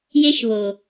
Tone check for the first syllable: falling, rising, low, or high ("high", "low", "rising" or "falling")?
high